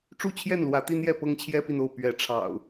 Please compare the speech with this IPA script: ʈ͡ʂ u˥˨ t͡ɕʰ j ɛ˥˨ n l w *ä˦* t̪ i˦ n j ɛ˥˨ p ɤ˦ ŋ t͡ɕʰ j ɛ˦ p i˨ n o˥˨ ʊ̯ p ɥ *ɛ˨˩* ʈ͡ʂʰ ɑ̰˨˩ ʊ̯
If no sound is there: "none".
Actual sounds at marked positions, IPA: ä˨˦, ɛ˨˦

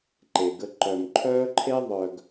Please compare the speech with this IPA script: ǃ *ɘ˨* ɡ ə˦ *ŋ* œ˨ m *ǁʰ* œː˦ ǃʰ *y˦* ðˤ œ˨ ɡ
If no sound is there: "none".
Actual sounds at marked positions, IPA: e˨, ǃ, ǃʰ, e˦

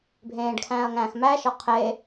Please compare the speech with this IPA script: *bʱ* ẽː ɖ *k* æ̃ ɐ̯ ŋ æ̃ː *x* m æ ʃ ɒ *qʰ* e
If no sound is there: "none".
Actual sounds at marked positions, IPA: bʱ, kʰ, x, qʰ

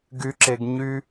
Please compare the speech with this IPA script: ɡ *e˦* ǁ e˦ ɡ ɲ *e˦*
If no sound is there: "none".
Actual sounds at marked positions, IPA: y˦, y˦

